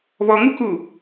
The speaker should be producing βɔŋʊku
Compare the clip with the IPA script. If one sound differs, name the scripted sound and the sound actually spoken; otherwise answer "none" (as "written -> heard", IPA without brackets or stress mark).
ʊ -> u